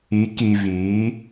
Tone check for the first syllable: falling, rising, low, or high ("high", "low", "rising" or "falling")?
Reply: rising